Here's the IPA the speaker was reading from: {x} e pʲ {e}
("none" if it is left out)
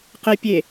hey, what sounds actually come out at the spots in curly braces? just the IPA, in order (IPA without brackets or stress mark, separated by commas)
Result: q, e